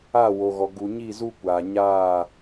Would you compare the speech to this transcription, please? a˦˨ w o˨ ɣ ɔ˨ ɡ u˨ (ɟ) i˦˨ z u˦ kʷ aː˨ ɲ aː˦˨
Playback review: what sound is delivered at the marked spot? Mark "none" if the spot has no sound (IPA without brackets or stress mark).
ɲ